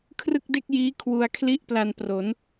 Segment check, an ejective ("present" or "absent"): absent